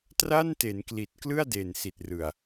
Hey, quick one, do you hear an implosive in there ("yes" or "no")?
no